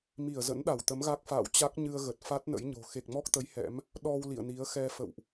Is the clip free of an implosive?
no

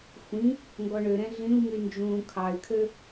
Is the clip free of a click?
yes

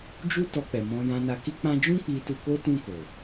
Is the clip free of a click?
yes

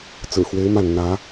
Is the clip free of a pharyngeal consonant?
yes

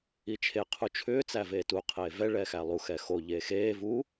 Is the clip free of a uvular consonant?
no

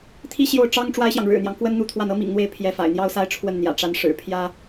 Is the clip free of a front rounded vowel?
yes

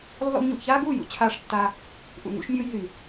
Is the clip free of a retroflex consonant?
no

